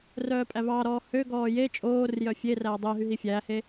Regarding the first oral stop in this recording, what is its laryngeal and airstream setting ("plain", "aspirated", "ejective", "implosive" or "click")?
ejective